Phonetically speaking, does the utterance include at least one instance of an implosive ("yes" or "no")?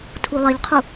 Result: no